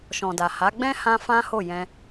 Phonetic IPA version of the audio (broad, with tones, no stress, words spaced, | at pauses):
ʃɔ̃˨da˨ha˨˦ ɡ͡bɛ̃˦ hã˦fã˦ho˦˨ jɛ̃˧